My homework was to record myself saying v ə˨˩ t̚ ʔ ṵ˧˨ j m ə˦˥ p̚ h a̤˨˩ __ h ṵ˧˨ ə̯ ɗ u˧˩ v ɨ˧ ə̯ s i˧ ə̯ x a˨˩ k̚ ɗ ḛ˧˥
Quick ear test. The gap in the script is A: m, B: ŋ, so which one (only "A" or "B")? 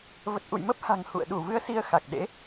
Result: B